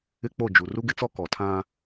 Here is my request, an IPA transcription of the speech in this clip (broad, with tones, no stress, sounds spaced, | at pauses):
ɪ˦ k͡p o˦˨ d͡ʒ u˨ r u˦ ɡ ɪ˦ t͡s ɔ˦ k ɔ˨ tʰ ã˦